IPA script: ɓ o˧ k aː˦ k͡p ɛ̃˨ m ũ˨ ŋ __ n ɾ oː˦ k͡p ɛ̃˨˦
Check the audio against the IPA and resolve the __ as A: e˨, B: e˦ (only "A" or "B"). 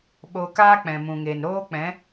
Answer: A